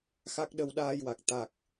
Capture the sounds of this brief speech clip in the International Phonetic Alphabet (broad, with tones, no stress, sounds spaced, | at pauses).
x a˦˥ k̚ ɗ ə˧ w ɗ aː˧ j w a˨˩ k̚ t̪ a˨˩ k̚